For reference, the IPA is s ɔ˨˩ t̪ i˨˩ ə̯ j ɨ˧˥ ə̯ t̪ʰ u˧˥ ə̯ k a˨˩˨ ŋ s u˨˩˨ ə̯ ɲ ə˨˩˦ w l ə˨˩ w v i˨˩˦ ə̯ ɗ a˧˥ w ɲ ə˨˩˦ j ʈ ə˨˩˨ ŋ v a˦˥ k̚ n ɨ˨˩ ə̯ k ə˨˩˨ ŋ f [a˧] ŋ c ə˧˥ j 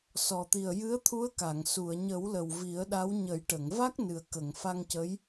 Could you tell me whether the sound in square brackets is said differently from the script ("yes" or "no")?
no